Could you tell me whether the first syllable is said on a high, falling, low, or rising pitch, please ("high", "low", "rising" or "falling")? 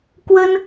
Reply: high